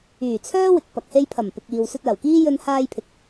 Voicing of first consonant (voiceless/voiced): voiceless